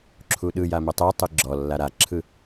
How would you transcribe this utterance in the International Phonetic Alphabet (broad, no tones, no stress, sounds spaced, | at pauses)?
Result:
ǁʰ u ɗ ɯ j a m ɛ tˤ ɛ tˤ ɨ ɡ͡ǁ ɔ lː a ɾ a ǁʰ ɯ